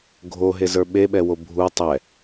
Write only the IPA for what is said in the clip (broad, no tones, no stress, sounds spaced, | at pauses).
ɡʱ o ɦ e z ə˞ ɓ e ɓ ɛ w o bʱ u tˤ ɛ